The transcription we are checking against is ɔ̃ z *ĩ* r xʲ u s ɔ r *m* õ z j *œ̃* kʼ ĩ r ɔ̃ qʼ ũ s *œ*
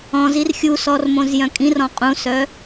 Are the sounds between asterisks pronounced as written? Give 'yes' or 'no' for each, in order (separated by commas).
no, yes, yes, yes